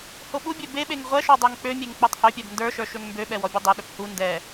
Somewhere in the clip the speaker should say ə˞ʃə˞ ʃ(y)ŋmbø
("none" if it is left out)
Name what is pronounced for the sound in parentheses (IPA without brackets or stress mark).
ø